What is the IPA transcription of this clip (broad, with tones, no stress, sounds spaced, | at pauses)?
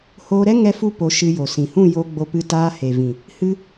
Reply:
h oː˧ ɾ ɛ˦ ŋ ɛ˦ f u˦ p o˨˦ ʃ ɨ˧ j o˨ s ĩ˨ h ũ˦˨ j o˧ ɡ͡b o˧ p ɨ˧ t aː˧ h e˨ v ĩ˨ | h ɨ˦